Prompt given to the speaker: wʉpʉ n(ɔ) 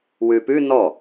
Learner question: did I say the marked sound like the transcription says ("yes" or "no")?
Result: yes